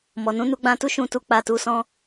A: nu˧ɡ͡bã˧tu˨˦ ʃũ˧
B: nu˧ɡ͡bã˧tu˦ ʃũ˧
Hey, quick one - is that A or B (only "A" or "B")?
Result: B